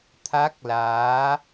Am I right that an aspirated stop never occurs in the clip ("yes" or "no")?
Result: no